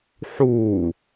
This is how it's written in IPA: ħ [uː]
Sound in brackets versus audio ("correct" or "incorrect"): correct